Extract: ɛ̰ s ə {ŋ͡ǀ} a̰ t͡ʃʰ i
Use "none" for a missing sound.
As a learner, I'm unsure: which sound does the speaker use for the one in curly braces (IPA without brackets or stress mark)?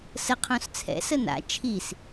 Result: n